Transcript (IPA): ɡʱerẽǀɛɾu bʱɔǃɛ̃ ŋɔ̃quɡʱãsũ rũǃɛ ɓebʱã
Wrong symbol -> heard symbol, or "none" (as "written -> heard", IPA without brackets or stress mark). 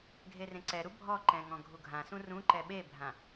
q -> ɡʱ